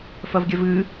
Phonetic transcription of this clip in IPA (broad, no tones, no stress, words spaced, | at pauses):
fɐvɡʲɐvɨ